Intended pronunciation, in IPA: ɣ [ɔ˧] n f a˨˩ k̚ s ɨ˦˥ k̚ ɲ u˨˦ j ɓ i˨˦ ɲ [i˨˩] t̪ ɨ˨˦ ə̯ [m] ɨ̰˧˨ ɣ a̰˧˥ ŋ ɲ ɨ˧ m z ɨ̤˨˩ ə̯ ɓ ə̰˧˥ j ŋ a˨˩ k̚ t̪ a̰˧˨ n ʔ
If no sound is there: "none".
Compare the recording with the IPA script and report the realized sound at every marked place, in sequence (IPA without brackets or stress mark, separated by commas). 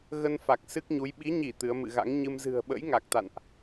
ə˧, i˧˩, m